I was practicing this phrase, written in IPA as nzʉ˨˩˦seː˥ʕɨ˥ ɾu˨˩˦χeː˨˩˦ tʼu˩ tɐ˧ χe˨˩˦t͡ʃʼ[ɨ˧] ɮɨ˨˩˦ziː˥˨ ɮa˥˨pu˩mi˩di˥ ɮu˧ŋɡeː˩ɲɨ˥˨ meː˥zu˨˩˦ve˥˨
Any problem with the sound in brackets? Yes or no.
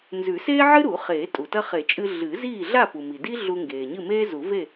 no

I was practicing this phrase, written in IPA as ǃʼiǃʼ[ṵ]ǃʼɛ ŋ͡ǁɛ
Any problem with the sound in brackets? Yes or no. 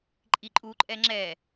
yes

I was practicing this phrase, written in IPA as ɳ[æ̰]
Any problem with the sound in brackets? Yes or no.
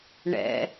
yes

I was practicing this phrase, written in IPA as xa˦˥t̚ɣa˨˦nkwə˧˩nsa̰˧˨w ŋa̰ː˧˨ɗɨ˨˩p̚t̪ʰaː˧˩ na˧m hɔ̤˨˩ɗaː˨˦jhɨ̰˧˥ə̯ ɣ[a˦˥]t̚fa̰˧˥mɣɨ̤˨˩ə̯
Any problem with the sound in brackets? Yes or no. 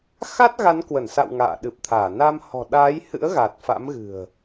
yes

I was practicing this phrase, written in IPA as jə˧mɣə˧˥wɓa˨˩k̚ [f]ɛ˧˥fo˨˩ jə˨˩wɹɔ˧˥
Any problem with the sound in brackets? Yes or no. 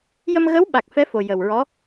no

